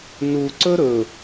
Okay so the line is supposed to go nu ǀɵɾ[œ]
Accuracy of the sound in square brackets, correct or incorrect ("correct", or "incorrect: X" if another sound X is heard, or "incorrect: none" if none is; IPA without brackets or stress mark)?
incorrect: ɵ